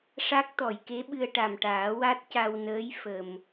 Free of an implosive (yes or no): no